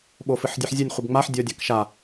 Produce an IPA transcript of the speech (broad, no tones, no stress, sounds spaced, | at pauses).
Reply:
ɓ o f ɨ ħ dʲ ɨ ħ zʲ u nʲ χʷ ɨ b ŋ͡m a ħ dʲ ɔ dʲ a k ʃ a